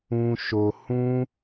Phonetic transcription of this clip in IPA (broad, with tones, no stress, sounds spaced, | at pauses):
ũ˧ ʃ o˨ h ũ˦